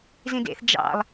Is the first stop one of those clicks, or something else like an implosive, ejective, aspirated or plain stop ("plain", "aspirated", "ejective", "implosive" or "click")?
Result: plain